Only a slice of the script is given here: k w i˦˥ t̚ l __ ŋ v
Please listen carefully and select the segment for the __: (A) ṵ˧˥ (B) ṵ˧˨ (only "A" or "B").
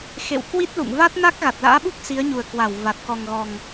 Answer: B